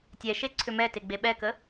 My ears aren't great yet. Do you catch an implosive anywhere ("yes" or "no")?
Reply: yes